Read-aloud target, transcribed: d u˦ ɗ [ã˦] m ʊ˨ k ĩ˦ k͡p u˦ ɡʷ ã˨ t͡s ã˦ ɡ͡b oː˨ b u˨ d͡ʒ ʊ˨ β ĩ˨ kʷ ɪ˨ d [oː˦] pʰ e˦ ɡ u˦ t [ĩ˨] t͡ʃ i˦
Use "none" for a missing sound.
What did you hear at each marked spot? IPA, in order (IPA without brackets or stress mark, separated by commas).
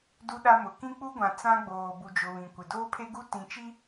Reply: a˦, oː˦, ĩ˨